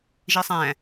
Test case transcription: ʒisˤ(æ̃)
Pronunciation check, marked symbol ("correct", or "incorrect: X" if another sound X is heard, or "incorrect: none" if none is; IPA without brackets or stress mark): correct